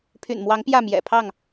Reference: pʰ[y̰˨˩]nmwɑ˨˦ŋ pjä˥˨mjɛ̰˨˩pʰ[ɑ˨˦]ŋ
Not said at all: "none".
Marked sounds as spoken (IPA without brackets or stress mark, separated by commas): y̰˨˩, ɑ˥˨